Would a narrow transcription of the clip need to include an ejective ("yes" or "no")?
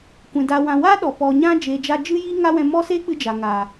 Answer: no